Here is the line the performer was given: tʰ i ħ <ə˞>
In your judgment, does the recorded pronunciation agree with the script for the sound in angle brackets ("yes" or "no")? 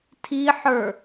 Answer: yes